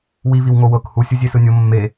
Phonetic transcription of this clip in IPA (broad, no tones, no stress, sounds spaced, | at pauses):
w i v i w ŋ o w ɤ k h u sʲ ɯ zʲ e s ɯ nʲ o mː e